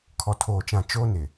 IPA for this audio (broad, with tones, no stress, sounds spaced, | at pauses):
kʰ ɔ˨ tʰ oː˨ t͡ʃ ã˨ t͡ʃ oː˦ n ɪ˨